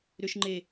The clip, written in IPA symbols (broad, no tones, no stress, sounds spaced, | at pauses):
ɾ ʏ ʃ ŋ͡ǃ e